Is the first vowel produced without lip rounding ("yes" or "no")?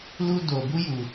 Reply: no